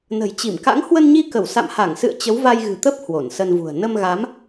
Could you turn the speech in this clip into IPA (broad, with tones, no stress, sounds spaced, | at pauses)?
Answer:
n ə̤˨˩ j t͡ɕ i˧˩ m k a̰˧˥ ŋ h w ə˧ n ɲ i˧ k ə˧˩ w s a̰˧˨ m h a˧˩ ŋ s ɨ̰˧˨ ə̯ t͡ɕ ə˨˦ w v a˧ j ɣ ɨ̤˨˩ t̪ ə˦˥ p̚ h w o˧˩ n s ə˧ n v ṳ˨˩ ə̯ n ə˧ m ɣ a˨˦ m